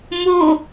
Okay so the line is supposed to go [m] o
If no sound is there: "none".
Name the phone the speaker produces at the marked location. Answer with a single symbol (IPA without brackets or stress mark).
m